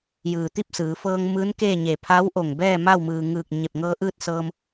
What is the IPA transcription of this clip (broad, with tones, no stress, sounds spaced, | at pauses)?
j ɯː˩ t̪ i˥˨ p̚ s ɯː˩˧ f ɤː˧ ŋ m ɯː˧˥ n k eː˥˨ ɲ e˧˩ pʰ a˧˥ w ʔ o˧˩ ŋ b ɛː˥˨ m a˥˨ w m ɯː˩ ŋ ɯː˧˩ k̚ ɲ e˧˩ p̚ ŋ ɤː˧ ʔ ɯː˥˨ t̚ s ɤː˧ m